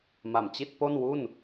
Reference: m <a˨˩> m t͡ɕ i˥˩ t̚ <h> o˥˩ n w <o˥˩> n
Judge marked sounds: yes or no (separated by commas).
yes, no, no